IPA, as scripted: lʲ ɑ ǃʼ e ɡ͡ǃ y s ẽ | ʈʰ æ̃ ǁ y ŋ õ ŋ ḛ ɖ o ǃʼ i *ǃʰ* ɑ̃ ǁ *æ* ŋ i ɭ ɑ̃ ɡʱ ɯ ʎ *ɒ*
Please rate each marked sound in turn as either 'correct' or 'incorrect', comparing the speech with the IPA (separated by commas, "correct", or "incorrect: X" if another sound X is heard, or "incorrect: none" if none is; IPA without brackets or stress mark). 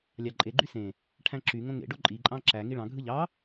incorrect: ǃʼ, correct, incorrect: ɑ